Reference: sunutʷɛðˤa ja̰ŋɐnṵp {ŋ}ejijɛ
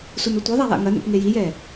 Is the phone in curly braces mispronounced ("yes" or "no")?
no